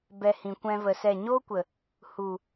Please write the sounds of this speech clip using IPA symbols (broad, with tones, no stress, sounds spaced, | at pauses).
b ɛ˧ h ĩ˨ kʷ ɛ̃˧ v ə˧ s ɛ˦˨ ɲ o˦ kʷ ə˨ | h u˨